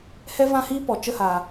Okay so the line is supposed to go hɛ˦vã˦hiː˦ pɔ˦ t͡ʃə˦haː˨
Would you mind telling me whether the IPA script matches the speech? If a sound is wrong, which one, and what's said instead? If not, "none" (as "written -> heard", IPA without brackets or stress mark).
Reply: ɔ˦ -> ɔ˨